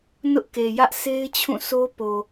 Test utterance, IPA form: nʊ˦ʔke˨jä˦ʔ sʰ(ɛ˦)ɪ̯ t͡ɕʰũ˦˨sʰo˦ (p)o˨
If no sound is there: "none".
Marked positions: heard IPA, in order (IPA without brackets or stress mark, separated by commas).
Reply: e˦, p